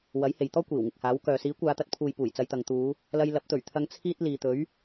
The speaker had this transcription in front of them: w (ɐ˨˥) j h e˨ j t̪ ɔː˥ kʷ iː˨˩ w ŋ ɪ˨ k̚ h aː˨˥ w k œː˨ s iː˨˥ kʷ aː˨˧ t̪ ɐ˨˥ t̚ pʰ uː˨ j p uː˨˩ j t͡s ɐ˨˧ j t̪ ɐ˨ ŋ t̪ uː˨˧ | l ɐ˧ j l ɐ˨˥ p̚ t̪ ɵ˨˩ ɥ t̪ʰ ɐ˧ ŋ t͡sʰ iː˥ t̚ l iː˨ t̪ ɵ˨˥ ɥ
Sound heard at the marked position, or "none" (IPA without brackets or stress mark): ɐ˨˥